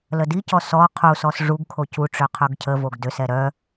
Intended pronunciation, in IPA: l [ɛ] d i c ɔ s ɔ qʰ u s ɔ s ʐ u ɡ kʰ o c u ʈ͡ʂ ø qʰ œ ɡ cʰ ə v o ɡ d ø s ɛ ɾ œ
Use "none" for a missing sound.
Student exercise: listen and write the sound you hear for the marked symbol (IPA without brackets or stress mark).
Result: ə